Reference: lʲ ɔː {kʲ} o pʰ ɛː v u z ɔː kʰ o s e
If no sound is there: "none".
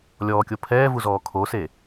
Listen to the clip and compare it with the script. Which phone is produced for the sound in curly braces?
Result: kʲ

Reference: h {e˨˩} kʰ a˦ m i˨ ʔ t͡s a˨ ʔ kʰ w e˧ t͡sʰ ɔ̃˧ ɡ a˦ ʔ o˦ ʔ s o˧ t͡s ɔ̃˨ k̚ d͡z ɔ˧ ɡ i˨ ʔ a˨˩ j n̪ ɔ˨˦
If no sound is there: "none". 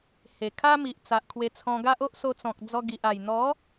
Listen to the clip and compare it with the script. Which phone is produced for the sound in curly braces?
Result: e˨˩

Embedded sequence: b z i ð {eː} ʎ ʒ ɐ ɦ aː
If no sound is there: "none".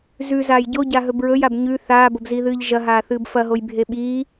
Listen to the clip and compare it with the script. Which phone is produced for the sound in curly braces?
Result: ɨː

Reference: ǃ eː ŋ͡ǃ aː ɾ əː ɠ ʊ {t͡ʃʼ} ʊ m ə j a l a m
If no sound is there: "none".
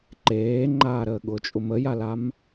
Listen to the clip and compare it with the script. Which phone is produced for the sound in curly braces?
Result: t͡ʃʼ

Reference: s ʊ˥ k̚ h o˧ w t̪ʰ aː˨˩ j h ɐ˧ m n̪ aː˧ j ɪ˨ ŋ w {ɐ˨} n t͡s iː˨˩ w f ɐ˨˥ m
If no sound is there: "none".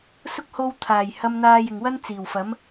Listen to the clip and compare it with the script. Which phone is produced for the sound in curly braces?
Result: ɐ˥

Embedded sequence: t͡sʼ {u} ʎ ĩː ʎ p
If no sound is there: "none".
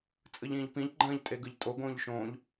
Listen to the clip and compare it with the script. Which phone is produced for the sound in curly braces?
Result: ɯ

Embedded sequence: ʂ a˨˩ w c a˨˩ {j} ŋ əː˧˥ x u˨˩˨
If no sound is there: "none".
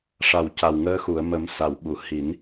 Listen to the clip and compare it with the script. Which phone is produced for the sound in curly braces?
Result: w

